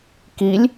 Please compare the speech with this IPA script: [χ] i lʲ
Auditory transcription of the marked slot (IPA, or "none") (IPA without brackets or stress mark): k